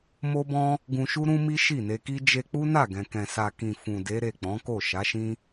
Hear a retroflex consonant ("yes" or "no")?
no